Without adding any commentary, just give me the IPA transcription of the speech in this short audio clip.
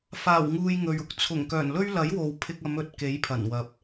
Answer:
f aː˨˩ w ŋ uː˨ j ŋ ɵ˨ ɥ ʊ˨˥ k̚ t͡sʰ ʊ˨˩ ŋ k œː˨˩ n l ɵ˥ ɥ l ɐ˨˥ j w o˨ w pʰ ɪ˧ k̚ ɐ˨˧ m ɵ˨ t̚ k e˨˥ j pʰ ɐ˨˩ n w ɐ˨ p̚

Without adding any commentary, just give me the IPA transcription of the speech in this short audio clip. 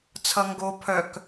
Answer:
t͡sʰ ʌ ŋ ɡ o pʰ œ k

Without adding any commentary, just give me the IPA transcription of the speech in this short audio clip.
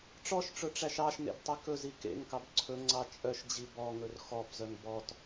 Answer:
ʈ͡ʂ ɔ ʃ ʈ͡ʂ ɵ ʈ͡ʂ æ ʃ ɑ ʃ n ḛ b tˤ i k ɵ z i k ḛ ŋ k ɑ b ǀʰ ɵ ŋ͡ǀ ɑ t͡ʃʼ œ ʃ d͡ʑ i b ɔ ŋ ɵ r x ɔ b z œ ŋ b ɔ t

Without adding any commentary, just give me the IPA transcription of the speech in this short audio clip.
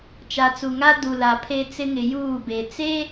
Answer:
t͡ʃ a˨ t͡s u˨ ŋ a˦ d u˨ l a˨ pʰ e˦ t͡s ɪ˦ ŋ ɪ˨ j uː˦˨ b e˨ t͡s e˦

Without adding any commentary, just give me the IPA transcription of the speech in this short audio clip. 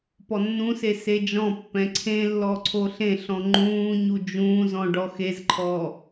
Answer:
p ɔ nː ũ s e s e d͡ʒ ɔ̃ pː ɛ̃ ǀʰ ẽ lː ɔ ǀʰ o ɬ ẽ ɬ ɔ̃ ŋ͡ǃ ũː ɲ u d͡ʒ ũː z ɔ̃ ɖ ɔ x e z ǃʰ ɔː

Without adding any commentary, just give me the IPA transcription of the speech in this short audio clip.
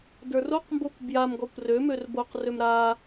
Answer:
d ə˞ r o q m b o kʷ b j a m ɡ ɔ kʷ r ø m ø r b o q r ø m ɾ a

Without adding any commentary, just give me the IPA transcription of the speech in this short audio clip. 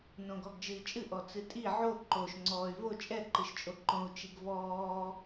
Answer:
n õ ɡ ɔ ɡ d͡ʒ ɨ i̯ t͡ʃʼ ɨ ʔ ɔ t͡s ɨ tʼ i ʕ o ǃ o ʃ ŋ͡ǀ ɔː y̯ v o t͡ʃʼ ɛ ǃ ɨ ʃ t͡ʃʼ o ǃ õ u̯ t͡ʃ i ɡ v ɔː

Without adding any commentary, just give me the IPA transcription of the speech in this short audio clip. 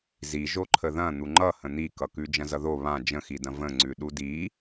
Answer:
z i ʒ o ǃʰ ə ð ɐ̃ n̪ u ŋ͡ǃ ʌ h ə̃ n̪ i k ʌ k ʉ d͡ʒ ɐ̃ z ʌ ð o β ã d͡ʒ ə̃ x i d ɐ̃ v ə̃ ŋ͡ǀ ʉ ɗ u d i

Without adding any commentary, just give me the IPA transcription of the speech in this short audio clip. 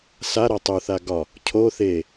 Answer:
s a ɾ a tˤ u θ a ɡ ɒ | cʰ o θ e

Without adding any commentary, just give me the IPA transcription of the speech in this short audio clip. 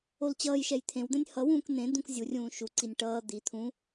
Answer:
o l t͡ɕ ʌː j ʃ ɛ j t̪ʰ ẽ w d̪ ɛ̃ nʲ h ʌ w ũː k n̪ ẽ d̪ ũ k zʲ u rʲ ũː ʃ u ǀ i nʲ ʈ ʌː d̪ i t̪ʰ ũ

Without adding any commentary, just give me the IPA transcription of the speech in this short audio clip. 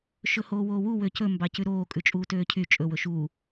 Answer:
ʃ ɵ h oː w oː w u w ø c ɵ m b ɑ c ʉ ɾ oː kʼ ʉ t͡ʃʼ uː t øː cʰ y t͡ʃʼ ɵ w ɵ ʃ uː

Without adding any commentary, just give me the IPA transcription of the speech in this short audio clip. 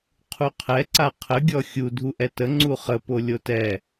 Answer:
qʰ u qʰ ɛ ǀ a qʰ ə ɡʲ ɔ xʲ u dʱ u ʔ ɛ t ə ŋ͡ǀ u χ ə p o lʲ o t ɛ

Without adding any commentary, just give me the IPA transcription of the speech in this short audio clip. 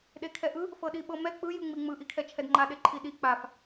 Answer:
ɗ e kʰ ɛ ʔ ɯ | f ɤ ɗ i ɓ ɤ m ɛ k͡p ɯ j ɯ ŋ͡m i ŋ͡m ɯ ʔ i kʰ ɛ t͡ʃʰ ɛ d ŋ͡ǃ a ɗ e ǃʰ i ɗ i k͡p a f

